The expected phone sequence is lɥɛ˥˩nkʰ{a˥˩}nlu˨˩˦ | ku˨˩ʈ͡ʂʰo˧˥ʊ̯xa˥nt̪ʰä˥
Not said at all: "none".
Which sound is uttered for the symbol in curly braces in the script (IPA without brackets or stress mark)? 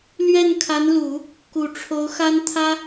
a˧˥